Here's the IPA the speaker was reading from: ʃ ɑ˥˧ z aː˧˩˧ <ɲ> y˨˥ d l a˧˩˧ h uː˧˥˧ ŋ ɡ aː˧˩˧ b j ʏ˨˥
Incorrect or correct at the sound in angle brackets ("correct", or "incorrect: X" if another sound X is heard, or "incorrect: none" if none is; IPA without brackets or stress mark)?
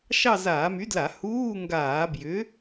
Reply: incorrect: m